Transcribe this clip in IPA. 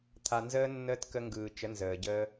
t̪ʰ a˧ n z əː˦ nː əː˦ t k ə˧ ŋ ɡ ɯː˨ t͡ʃ ə˨˦ n z əː˨ ɟ ə˧

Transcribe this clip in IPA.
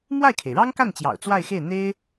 m w a˥˩ ɪ̯ kʰ e˩ ɪ̯ ɻ ɑ˥ ŋ k a˥˩ n t͡ɕ j ɑ̰˨˩ ʊ̯ t͡s w a˥˧ ɪ̯ x e˥˩ ɪ̯ n̪ e˥ ɪ̯

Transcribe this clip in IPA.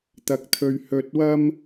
t̪ ɐ˧ k̚ t̪ʰ ɵ˧ ɥ h ɵ˧ t̚ w ɐ˥ m

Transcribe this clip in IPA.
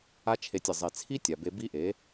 a˦ t͡ʃʰ e˧ tʲ ɪ˨ zˤ e˨ t͡sʰ i˦ tʲ a˨ b e˧ b i˦ ʔ e˨˦

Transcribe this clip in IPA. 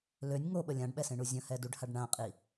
l ø nʲ ŋ o ɓ ə lʲ ã ɖ ɓ ɛ s ẽ ɳ u zʲ ə̃ h ɛ d u ɖ h a ɖ ɳ ã qʼ i

